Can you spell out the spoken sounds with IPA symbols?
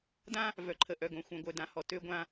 d ã˦ | v œ˨ ǃʰ ə˨ ʔ œ˨ ɡ õ˨ xʷ œ̃˨ ɡʷ œ˨ d ã˨ h ɔ˨ t ø˦ ɡʷ ã˦

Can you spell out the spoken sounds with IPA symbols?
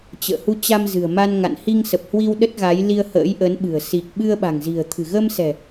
t͡ɕ ə̰ː˧˨ h u˧ t͡ɕ a˧ m z ɨ̤˨˩ ə̯ m a˧ n ŋ a̰˧˨ n h i˧ ŋ s ə˨˩ p̚ h w i˧ w ɗ ə˦˥ t̚ ɣ a˨˦ j l i˧ ə̯ h ə̰ː˧˥ j ʔ ə˨˦ n ɓ ɨ̤˨˩ ə̯ s i˨˩ k̚ ɓ ɨ˧ ə̯ ɓ a̤˨˩ ŋ z i̤˨˩ ə̯ t̪ʰ ɨ̤˨˩ ɣ ə˧ m s ɛ̤˨˩

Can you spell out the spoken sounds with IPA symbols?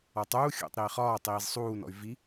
ɒ tˤ uː xʲ ṵ tˤ ɾ iː χ ɒː tˤ iː z sˤ uː n ɔ̰ y̯ v i

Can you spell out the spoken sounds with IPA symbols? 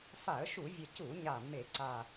f a˧˩˧ ə̯ ʃ u˧˩˧ vʲ ə˨˩ c u˧˩˧ ɲ a˨˩ mː e˧˩˧ ǀ a˨˩

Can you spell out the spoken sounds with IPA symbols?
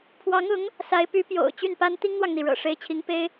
pʰ w ɑ˧˥ ŋ ʊ˧˥ ŋ | s a˧˥ ɪ̯ p y˧˥ p j o̰˨˩ ʊ̯ t͡ɕ y˥˩ n p a˥ n t̪ i˥ ŋ n̪ w ɑ˨ ŋ n̪ i˩ ɻ ɤ̰˨˩ ʂ e˧˥ ɪ̯ t͡ɕʰ i˧˥ ŋ p e˥ ɪ̯

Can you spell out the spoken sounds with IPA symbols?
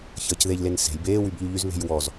ç əː c ð e ʎ l e n s e̤ j b eː w y b ʎ y ʎ y z β e̤ j w ɔ z

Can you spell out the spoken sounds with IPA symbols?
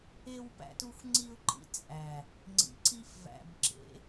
e˦ w p æ̰˦ t u˦ xʷ ŋ͡ǀ i˦ ʊ̯ ǃ ḭ˦ t͡sʼ æ˨ | ŋ͡ǀ ḭ˨ ǀ i˦ f v æ̰˨ b ǁ ḛ˨˦

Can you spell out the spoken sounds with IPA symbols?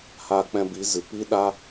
h aː˧ k͡p ɛ̃˧ b i˨˦ z ɨ˨ p i˦ ɗ a˦

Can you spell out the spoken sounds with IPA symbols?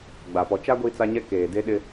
ɡ͡b a˨ p ɔ˨ t͡ʃ a˦ ɡʷ iː˦ t͡s a˦ ɲ ɛ˦ k eː˨ d e˦ ɗ ɪ˦

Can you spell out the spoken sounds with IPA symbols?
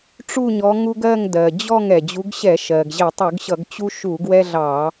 ʈ͡ʂ u˥˨ ɲ ɔ˨˦ ŋ u˦ ɡ ɜ˥˨ ŋ d ɜ˩ d͡ʑ ɔ˥˨ ŋ ɛ˩ d͡ʑ u˨˦ ɡ ɕ ɛ˧˩˧ ʃ ɜ˩ ɡ ʑ ɛ˧˩˧ tˤ u˧˩˧ ɡ ɕ ʌ˧˩˧ ɡ t͡ɕ u˦ ʃ u˧˩˧ ɡ w ɛ˦ ɮ ɑ˧˩˧

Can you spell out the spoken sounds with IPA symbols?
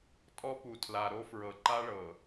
tʼ ɔ˦ p u˨ tʰ l a˨ ɾ o˦ f ɹ ɤ˨ ǃ a˦ ɭ ɤ˨

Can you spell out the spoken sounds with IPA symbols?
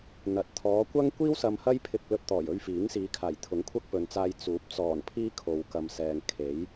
n̪ ɐ˨ t̚ t̪ʰ ɔː˨˧ kʷ ɐ˥ ŋ kʷ iː˥ w s ɐ˧ m h ɐ˥ j pʰ ɪ˧ k̚ l ɵ˧ t̚ t̪ ɔː˨˩ j ɵ˧ ɥ f iː˨˥ ŋ s iː˨˧ kʰ aː˨˩ j t̪ʰ ʊ˨˥ ŋ kʷʰ ɐ˥ k̚ p ɵ˨ n t͡s aː˧ j t͡s uː˨˥ p̚ t͡s ɔː˨˩ n pʰ iː˥ kʰ o˨ w k ɐ˨ m s ɛː˨ ŋ kʰ e˨˥ j

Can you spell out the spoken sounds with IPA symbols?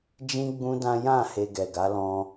d͡ʒ ĩ˦ ɡ͡b ũ˦ d ã˦ j ã˦˨ h e˧ ɡ ɛ˨ ɡ a˨˦ l ɔ̃˧

